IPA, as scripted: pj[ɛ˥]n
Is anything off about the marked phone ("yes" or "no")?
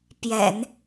yes